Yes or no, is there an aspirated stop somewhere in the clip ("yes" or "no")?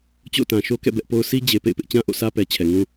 yes